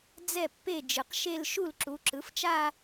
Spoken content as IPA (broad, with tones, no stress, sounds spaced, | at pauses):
d͡z ɛ˥˩ pː e˥˩ d͡ʒ ɯ˩˥ q ʃ e˥˧ l ʃ u˥˩ l ǁ u˩˥ ǁ ɯ˩˥ f t͡ʃ a˥˧